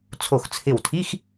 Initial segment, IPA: t͡sʰ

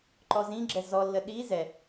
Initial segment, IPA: ǃ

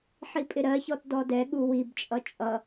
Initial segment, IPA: ħ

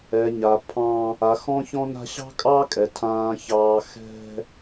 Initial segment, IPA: ɛ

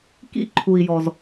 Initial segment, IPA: k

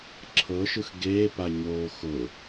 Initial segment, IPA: ǁʰ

